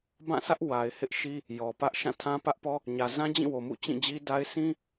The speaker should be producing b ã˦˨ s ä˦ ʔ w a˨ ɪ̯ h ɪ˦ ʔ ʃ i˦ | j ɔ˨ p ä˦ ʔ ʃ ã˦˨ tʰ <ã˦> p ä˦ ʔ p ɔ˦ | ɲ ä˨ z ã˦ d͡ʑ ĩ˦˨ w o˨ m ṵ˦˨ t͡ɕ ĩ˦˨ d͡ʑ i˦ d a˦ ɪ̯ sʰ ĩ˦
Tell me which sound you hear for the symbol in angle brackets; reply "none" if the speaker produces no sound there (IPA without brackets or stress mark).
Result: ã˦